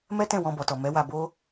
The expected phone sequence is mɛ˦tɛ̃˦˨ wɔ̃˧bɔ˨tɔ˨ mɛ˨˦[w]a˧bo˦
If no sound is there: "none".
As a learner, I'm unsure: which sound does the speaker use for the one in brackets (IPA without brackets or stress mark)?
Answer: w